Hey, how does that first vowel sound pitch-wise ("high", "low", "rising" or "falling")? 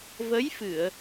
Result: rising